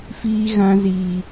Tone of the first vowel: high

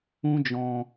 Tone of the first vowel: high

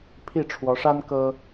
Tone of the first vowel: falling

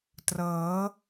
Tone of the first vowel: rising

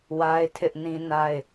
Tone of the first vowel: high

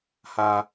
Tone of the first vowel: high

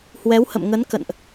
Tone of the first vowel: rising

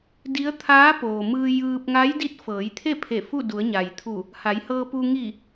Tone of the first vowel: rising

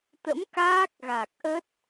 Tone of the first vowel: rising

